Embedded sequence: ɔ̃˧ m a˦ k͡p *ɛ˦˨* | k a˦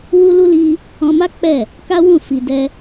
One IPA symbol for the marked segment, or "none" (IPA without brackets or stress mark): ɛ˦˨